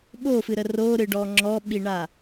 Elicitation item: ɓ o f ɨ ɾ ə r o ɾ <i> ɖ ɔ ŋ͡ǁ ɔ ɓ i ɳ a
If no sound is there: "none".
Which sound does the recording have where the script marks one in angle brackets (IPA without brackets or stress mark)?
ɨ